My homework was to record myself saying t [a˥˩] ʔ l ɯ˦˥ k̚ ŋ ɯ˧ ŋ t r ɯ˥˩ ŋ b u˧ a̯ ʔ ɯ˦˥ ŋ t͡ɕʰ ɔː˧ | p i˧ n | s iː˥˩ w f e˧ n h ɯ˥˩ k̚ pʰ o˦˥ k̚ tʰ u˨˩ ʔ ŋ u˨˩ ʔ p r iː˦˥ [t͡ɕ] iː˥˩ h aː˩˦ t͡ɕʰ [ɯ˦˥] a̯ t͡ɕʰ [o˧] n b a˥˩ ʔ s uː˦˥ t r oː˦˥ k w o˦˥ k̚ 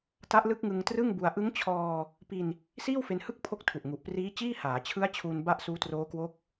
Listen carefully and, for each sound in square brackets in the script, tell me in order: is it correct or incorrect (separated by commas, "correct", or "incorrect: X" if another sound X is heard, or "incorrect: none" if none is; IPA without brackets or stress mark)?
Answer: incorrect: a˦˥, correct, correct, incorrect: u˧